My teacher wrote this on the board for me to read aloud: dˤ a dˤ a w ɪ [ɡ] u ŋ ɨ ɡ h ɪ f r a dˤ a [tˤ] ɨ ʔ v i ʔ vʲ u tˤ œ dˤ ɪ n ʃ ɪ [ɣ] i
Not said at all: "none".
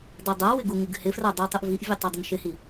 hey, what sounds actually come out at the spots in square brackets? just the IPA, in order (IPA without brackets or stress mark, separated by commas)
ɡ, tˤ, h